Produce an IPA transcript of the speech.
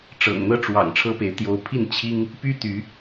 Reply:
ʈ͡ʂ ɤ̰˨˩ ŋ n̪ ɤ˥ ʈ͡ʂ w ɑ̰˨˩ ŋ ʈ͡ʂʰ ɤ˥ p e˧˥ ɪ̯ t̪ j o˧˥ ʊ̯ pʰ i˥˩ n t͡ɕʰ i˥ ŋ | p y˥ t̪ y˧˥

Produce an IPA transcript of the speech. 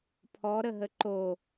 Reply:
pʰ ɔ ɾ ə ɦ ə ǃ o

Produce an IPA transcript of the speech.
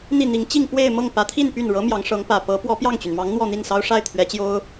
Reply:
n̪ i˥˩ n̪ i˧˥ ŋ t͡ɕ i˥˧ ŋ p w e˥˧ ɪ̯ m ɤ˥˩ ŋ p ä˧˥ t̪ʰ i˥˧ n p y˥˩ n ɻ ɤ˧˥ m j ɑ˧˥ ŋ ʂ ɤ˧˥ ŋ p ä˨˩ p ɤ˧˥ p w ɔ˧˥ p j ɑ˥˩ ŋ t͡ɕ y˩ n m ɑ˧˥ ŋ n̪ w ɔ˥˧ n̪ i˥˩ n s ɑ˥ ʊ̯ ʂ a˥˩ ɪ̯ t̪ʰ ɥ ɛ˧˥ t͡ɕ j o˥ ʊ̯

